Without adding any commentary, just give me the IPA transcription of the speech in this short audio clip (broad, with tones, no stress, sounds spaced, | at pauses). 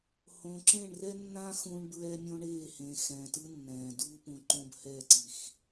h õ˨ ǁ ẽ˦˨ ɳ r ɛ˦ nː ã˦ x ũ˦ ɳ b ɹ ɛ˦ mʲ õ˦ ɳ eː˦˨ h ẽ˨ x ɛ̃ː˨ t ɯ˦ nː ɛ̃ː˨ d uː˦ p ũ˨ ǃ õ˦ b h ɛ˦˨ ǀ i˨ x